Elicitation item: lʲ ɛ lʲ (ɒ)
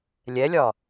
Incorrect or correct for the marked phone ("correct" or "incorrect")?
correct